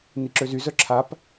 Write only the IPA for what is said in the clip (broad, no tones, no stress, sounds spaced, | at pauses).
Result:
n i ǁ ø z y z œ ǁʰ a p